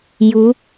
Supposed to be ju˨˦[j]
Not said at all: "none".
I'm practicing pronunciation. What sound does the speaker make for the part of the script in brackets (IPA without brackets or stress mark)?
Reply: none